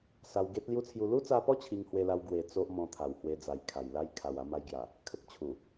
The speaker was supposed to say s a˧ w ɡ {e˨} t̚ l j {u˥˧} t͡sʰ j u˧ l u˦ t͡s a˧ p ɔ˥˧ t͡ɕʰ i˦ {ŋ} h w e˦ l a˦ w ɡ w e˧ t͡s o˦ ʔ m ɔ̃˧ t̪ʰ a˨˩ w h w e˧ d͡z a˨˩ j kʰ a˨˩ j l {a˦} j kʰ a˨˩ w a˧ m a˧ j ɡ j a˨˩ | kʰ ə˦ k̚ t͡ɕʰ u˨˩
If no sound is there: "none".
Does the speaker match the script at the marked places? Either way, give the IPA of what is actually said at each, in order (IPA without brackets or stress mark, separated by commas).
e˦, u˦, ŋ, a˦